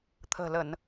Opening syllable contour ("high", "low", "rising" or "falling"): low